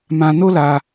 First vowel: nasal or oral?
nasal